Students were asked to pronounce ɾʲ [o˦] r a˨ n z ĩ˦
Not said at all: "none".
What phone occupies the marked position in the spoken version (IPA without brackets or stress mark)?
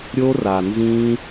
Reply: o˦